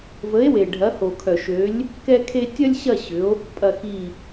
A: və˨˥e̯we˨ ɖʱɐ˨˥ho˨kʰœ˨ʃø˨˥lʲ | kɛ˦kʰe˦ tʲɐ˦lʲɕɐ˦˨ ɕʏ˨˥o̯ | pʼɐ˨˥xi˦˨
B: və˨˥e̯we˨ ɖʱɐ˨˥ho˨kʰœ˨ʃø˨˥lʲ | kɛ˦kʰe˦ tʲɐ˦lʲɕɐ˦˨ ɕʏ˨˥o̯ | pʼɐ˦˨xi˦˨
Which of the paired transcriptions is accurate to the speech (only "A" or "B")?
B